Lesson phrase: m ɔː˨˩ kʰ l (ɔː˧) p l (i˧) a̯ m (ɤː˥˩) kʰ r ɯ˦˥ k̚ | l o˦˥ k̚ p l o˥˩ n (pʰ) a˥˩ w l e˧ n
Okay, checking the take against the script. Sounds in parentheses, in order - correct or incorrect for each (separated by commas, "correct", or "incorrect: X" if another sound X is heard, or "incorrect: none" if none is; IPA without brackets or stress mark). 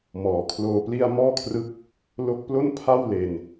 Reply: incorrect: oː˧, incorrect: i˥˩, incorrect: ɔː˥˩, correct